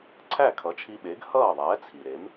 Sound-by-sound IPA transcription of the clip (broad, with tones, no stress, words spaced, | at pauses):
ǀʰæ˥˩kʰʌ˩˥t͡ʃʰi˧ɓe˩˥ɡ hʌː˥˩ðˤɛː˩˥t͡sʰi˩ɾe˩˥m